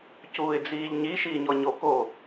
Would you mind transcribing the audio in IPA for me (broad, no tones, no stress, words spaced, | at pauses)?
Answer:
cuːɪ̯d͡ziːʎɲi ʃiːɲɔɲo ko